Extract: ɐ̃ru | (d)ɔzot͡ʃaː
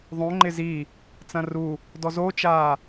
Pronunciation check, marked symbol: correct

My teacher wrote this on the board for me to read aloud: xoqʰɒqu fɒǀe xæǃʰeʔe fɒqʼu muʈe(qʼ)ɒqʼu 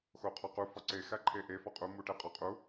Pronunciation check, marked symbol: correct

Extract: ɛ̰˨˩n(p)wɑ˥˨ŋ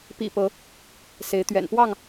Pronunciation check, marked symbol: correct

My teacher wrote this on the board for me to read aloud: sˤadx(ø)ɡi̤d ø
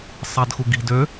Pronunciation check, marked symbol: incorrect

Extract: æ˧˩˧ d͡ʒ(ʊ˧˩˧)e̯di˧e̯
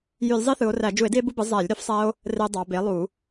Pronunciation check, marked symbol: incorrect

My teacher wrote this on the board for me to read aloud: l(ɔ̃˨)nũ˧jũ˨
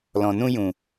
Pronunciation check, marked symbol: correct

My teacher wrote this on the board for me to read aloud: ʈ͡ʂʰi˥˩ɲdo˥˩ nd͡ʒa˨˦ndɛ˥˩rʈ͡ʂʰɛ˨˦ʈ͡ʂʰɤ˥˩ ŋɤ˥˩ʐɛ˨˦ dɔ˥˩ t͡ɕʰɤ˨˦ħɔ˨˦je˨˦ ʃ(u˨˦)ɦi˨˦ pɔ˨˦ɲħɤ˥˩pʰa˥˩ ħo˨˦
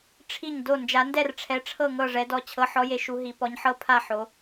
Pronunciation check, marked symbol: correct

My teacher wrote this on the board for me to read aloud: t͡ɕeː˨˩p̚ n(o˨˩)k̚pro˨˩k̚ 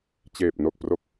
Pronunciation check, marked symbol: correct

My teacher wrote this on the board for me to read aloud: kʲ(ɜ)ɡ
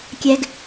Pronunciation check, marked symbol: incorrect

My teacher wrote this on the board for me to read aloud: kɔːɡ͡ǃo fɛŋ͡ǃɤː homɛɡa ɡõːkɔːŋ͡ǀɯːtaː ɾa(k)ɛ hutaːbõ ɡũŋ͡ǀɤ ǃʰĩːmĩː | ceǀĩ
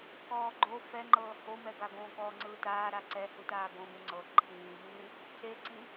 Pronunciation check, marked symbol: incorrect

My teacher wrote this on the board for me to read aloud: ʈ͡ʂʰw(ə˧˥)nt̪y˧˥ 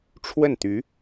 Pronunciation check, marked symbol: incorrect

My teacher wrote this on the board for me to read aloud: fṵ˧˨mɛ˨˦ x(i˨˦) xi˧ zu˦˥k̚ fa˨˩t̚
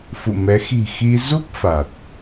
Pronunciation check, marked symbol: incorrect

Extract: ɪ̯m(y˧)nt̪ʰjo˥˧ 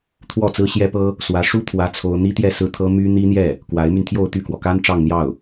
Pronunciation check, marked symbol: correct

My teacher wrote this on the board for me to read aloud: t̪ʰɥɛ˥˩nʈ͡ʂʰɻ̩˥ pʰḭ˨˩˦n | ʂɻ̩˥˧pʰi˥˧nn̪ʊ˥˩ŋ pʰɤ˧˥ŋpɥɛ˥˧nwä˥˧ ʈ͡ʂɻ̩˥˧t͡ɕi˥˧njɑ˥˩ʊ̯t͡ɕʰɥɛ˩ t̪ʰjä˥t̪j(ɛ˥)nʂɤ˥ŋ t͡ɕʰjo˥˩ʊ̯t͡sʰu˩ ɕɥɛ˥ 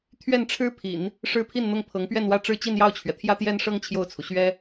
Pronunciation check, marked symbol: correct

